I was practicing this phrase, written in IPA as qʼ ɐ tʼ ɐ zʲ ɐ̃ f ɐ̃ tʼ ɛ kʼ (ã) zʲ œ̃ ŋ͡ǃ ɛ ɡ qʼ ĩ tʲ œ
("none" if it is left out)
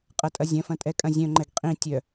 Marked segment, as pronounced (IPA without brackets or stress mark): ɐ̃